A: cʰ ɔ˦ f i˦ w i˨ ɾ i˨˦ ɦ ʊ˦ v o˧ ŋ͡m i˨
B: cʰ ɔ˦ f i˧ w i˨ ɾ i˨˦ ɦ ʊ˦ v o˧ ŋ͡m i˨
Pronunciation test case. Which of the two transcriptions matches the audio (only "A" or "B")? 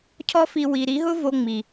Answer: B